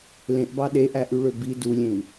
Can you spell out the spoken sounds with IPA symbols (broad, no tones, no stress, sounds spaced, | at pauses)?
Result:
l ẽ ʔ b ɑ ɗ e ʔ æ ʔ y ɭ ø b i d u lʲ ẽ i̯